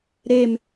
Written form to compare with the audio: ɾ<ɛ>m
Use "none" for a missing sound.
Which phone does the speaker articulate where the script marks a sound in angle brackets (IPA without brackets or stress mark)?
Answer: e